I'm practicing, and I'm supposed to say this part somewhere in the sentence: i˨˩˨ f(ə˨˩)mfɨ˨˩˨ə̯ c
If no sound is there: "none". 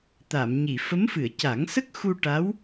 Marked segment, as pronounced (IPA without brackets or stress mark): ə˧˥